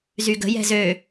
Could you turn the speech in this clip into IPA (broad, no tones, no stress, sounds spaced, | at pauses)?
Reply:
z y ɡ ə̤ j ɛ̤ z ø